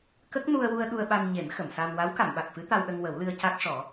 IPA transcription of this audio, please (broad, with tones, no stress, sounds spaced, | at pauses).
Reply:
k ə˦˥ k̚ n u˧ ə̯ w u˧ ə̯ ɗ u˧ ə̯ ɓ a˧ n ɲ e˨˩˦ m x ə˨˩˨ m s a˧ m w a˧˥ w k a˨˩˨ m ɓ a˨˩ k̚ f ɨ˧˥ t̪ a˧ w ɗ ə˧ ŋ w ə˨˩˦ w l ɨ˧ ə̯ c a˦˥ k̚ ʂ ɔ˨˩˦